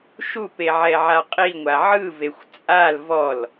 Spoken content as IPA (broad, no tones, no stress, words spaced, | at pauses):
ʃupe ʕɛʕaqʼiŋʷa ʕɯvexʷ t͡sʼal vɔl